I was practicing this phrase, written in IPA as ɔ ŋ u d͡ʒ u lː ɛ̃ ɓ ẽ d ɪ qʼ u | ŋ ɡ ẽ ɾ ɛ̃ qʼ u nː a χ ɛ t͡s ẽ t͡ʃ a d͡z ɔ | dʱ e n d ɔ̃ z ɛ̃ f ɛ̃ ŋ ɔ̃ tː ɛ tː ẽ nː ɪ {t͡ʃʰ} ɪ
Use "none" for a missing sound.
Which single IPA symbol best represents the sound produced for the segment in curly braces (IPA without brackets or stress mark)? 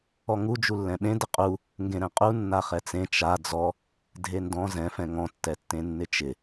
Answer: t͡ʃ